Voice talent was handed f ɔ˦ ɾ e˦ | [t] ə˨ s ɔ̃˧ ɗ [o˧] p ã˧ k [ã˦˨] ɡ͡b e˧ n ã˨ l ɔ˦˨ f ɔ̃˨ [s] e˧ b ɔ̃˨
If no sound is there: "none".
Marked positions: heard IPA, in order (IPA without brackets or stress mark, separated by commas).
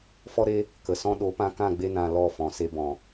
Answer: k, o˨˦, ã˦˨, s